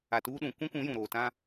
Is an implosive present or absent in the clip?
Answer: present